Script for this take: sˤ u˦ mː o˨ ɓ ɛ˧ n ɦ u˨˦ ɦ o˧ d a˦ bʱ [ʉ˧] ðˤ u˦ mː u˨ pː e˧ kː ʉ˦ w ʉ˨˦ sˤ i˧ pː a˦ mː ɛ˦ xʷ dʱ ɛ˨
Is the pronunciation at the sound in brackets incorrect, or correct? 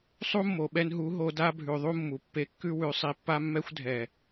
incorrect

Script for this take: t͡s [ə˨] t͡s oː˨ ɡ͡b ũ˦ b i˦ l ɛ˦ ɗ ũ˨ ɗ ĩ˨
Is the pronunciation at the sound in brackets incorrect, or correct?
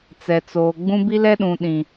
incorrect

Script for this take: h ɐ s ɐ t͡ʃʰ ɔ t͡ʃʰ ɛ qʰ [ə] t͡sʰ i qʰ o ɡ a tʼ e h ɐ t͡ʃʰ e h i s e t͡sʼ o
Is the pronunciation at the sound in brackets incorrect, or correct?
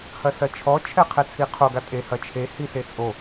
incorrect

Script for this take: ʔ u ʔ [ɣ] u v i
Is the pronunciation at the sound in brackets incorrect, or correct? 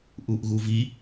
correct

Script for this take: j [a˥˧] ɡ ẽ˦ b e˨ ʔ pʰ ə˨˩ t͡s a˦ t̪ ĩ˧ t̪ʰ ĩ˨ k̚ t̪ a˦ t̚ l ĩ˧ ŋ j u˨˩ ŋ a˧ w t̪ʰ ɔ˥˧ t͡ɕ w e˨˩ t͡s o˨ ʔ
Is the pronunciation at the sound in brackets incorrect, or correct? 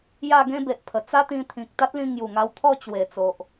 correct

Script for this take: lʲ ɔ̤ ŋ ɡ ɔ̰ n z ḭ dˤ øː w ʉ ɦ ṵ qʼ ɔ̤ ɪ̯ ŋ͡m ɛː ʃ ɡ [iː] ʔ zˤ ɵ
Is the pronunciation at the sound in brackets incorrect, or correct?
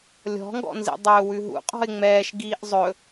correct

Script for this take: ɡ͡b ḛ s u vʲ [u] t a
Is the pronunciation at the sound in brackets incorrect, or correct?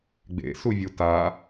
correct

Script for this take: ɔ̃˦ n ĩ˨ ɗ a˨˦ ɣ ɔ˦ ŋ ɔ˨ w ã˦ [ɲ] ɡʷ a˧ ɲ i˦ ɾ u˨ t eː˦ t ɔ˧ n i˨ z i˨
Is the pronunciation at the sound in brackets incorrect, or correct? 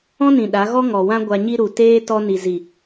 incorrect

